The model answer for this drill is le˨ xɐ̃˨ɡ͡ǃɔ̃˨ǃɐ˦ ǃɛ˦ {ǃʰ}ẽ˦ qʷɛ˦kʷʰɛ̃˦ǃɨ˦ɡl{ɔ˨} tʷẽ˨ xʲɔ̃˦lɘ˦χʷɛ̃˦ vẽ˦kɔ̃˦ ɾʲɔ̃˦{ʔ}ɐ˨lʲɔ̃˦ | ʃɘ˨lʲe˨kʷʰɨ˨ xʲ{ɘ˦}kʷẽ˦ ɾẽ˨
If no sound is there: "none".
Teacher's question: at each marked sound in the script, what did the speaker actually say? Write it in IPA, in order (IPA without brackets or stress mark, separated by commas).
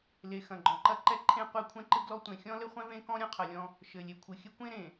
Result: ǃʰ, ɔ˦, qʰ, ɘ˦